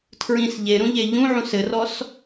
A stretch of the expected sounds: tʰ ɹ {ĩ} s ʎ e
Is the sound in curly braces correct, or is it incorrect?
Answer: correct